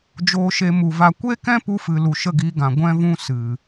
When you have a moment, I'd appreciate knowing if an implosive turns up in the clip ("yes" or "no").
no